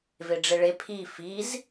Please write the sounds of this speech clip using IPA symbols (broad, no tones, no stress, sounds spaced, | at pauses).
v e ɖ͡ʐ e ɭ e pʰ i f i z